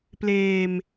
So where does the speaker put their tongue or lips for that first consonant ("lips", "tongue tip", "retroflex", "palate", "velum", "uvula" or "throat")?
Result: lips